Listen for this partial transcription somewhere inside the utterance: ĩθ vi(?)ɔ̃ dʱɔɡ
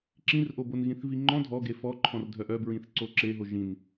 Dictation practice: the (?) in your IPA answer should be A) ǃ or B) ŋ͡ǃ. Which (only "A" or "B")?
B